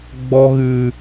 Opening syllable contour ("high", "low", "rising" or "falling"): high